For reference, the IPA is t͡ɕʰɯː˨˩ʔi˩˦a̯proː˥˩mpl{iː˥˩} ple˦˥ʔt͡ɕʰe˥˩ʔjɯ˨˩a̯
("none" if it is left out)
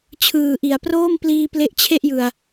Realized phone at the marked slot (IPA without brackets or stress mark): iː˧